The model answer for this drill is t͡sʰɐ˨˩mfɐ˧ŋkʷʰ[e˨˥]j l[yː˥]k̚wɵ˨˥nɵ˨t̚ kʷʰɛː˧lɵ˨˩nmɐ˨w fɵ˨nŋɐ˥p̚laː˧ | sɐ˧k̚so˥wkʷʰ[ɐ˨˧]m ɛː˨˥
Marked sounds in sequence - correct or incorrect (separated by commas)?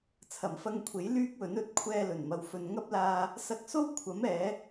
correct, correct, incorrect